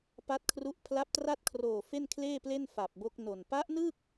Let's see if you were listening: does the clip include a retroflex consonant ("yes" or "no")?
no